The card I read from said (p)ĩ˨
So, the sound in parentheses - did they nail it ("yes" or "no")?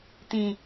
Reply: no